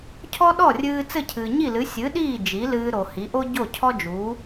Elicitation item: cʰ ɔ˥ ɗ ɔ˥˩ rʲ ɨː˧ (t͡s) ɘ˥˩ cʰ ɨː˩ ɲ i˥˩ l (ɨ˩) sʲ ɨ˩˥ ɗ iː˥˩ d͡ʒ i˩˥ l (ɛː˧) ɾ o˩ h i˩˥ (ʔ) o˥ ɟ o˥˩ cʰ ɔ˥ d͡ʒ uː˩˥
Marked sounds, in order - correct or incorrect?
correct, incorrect: ɨ˩˥, incorrect: ɨː˧, correct

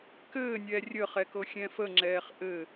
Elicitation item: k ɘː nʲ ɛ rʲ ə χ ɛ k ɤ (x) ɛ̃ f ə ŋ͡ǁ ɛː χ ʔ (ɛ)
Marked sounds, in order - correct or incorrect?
incorrect: xʲ, incorrect: ɘ

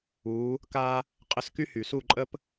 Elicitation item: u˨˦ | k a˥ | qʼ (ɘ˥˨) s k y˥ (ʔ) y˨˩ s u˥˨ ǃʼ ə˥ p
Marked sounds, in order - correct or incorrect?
correct, incorrect: h

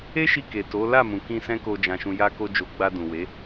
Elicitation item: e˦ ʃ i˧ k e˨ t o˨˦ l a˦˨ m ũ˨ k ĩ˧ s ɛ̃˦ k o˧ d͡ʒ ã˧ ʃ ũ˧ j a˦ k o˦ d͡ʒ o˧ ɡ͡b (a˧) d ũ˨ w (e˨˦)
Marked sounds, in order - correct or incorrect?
correct, correct

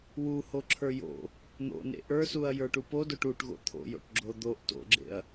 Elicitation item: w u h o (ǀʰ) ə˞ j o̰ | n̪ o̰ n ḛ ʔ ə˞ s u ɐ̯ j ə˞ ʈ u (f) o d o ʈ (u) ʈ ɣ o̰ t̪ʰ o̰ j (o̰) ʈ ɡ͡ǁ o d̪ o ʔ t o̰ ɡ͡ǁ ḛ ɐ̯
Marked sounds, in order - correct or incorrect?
incorrect: ǁʰ, incorrect: p, correct, correct

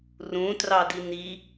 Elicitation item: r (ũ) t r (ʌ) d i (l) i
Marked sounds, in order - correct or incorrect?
correct, incorrect: ɑ, incorrect: n

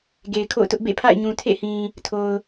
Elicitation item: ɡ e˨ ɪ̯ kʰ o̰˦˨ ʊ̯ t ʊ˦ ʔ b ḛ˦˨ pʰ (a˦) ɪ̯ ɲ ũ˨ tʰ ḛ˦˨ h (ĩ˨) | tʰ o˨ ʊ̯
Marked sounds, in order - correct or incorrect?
incorrect: a̰˦˨, correct

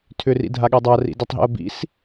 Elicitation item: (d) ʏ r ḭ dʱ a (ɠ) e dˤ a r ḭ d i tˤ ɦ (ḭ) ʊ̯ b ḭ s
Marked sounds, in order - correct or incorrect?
incorrect: tʰ, correct, correct

